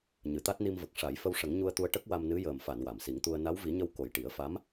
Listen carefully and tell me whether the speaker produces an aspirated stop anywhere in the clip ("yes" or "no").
no